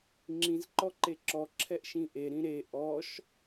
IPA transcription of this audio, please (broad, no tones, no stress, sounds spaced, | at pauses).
ŋ͡ǁ ĩ z ǃ ɔ ǃ e ǁ ɔ ǁʰ ɛ ʔ ʃ ĩ ʔ e ɾ ĩ ɾ e ʔ ɔ ʃ